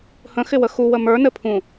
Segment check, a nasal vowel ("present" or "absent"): present